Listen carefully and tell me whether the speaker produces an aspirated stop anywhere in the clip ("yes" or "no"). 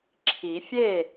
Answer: yes